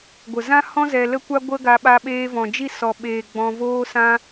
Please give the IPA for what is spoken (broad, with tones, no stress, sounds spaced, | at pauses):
ɡʷ ə˨ z ã˦ h ɔ̃˦ z ɛ˧ l ə˦ kʷ a˦ ɡʷ ə˦ ɡ a˧ ɓ a˧ ɓ eː˧ v ɔ̃˨ d͡ʒ i˦˨ s ɔ˨ ɓ eː˨ ɡ͡b ɔ̃˧ v oː˦ s ã˦